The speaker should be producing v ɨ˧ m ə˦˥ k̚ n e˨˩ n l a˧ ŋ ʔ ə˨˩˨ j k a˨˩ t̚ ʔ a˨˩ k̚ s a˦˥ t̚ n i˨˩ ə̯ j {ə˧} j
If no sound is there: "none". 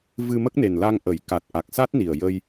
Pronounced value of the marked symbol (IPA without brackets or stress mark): ə˧